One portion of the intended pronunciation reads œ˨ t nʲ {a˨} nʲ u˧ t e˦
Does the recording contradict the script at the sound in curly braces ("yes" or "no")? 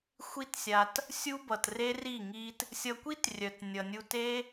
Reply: yes